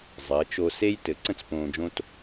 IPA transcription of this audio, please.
zˤəː˩˧t͡ʃo˧ se˥j tɘ˩˧ǀə̃˥t͡s põː˧d͡ʒõ˥t

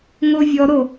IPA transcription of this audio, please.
ŋovʲɔɾo

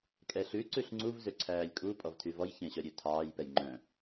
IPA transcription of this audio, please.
kʼɛɬʉ ǀʉɬŋ͡ǀuv zøǀʰæːlʲkʼu pʼɔvtʰyvɔj çẽɕœɾʲøtʰɑːj pɛjŋ͡ǃœ̃

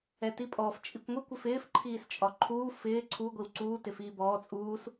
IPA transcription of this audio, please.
ɛtipʼɔf t͡ʃʼikʷŋʷikʷ ɪfɪːf ǃʰiːst͡ʃʼɒǃʰuː fɪː ǀʰu ɡʷiwǀuː tɪfiːbɔː t͡sʼuːs

